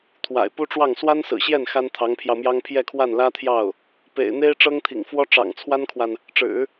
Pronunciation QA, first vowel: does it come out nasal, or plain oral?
oral